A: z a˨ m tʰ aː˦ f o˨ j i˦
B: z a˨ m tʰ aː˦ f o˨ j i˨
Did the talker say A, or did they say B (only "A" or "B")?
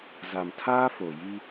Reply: A